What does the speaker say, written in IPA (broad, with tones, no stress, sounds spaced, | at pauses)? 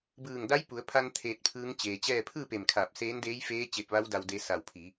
b ɯː˧˩ ŋ d a˧˥ j p u˩˧ ə̯ pʰ a˧ n t̪ʰ eː˧ t̚ pʰ ɯː˧˥ ŋ t͡ɕ eː˩ t͡ɕ ɛː˥˨ pʰ ɯː˥˨ p e˧˩ m kʰ aː˧˩ p̚ s eː˧˥ n d eː˧˥ j f eː˧˥ t͡ɕ e˧ p̚ ʋ a˧˥ w d a˧ w d e˧ s a˧˩ w pʰ i˩˧